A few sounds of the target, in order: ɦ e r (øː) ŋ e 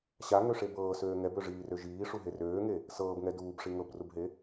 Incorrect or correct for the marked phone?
correct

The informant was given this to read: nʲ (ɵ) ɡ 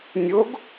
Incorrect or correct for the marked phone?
incorrect: o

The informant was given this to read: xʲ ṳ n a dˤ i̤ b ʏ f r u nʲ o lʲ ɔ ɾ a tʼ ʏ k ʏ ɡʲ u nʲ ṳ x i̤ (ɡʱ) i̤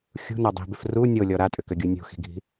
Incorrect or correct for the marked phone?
correct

